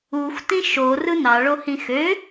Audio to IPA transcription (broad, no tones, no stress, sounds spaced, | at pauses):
u xʷ t ĩ ʃ o r ɯ n ɑ ɭ o h ĩ x ø